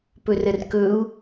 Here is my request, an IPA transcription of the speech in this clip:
pɵrərkɵu̯

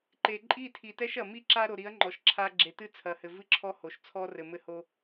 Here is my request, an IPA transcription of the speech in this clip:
ǃe˨ ǃʼi˦˨tʰi˨tɛ˦ʃ ɐ˨mi˦ǁa˦ ɾo˨ɾi˨˦ɐ̯ŋ͡ǃɔ˨ʃ ǁʰa˦ ɡ͡ǁe˨tɨ˦ t͡sʰɐ˨hɘ˨ vɨ˦ǁʰɔ˦ho˨ʃt͡sʰɔ˦ rɘ˨mɘ˦ho˦

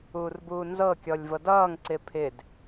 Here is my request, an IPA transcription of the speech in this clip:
uːrbuːnzɤkʲɔlʲ vɤdʌːŋǀɪː pʰɪd

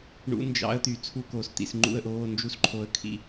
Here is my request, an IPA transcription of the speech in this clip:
ɳṵ˧˥nd͡ʒɑ̰˧˥ə̯ t̪y˨ t͡sʰu˧˥˧koː˨st̪ḭ˨sŋ͡ǃṵ˥˨ə̯ ʔoː˧˥˧nd͡ʒu˥˨sǃʰo˧˥ə̯kʰḭ˥˨

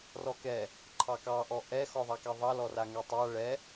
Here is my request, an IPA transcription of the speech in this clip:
rɔkɛ | ǃʰɑkɑʔɔ ʔɛxɔðˤakɛ ðˤɑlɔraŋɛ tˤa ɭɛ

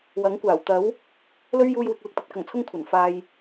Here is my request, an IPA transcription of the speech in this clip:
wɐ˨˥ŋkʷaː˨˩w t̪ɐ˨˥w | lɵ˥ɥjuː˧jwɪ˨k̚ lɪ˨k̚t̪ɵ˨t̚kɐ˨˩ŋt͡sʰʊ˥ŋ kʷʰɐ˨˩n faː˧j

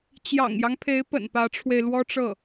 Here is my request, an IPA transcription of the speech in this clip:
t͡ɕjɑ̰˨˩ŋjɑ˦ŋpʰe˧˥ɪ̯pə̰˨˩n pä˧˥ʈ͡ʂʰwe˧ɪ̯lwɔ˥ʈ͡ʂɤ˥˩

